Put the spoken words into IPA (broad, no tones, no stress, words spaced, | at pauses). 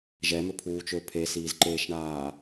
ʒɛmøpʰuːt͡ʃø pʰesiːzǃeːʃɳaː